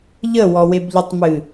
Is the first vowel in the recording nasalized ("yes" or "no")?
no